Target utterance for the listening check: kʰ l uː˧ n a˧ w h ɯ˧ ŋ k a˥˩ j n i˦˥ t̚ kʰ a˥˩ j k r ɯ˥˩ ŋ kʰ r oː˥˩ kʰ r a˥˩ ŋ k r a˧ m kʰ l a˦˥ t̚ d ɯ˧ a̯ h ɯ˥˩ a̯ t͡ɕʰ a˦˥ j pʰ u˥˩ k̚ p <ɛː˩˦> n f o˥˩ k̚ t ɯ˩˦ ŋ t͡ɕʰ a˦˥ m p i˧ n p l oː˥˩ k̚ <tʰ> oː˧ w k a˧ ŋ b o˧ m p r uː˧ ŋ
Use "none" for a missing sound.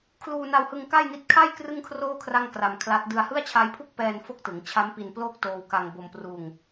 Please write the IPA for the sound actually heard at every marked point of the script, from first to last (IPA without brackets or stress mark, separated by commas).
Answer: ɛː˧, t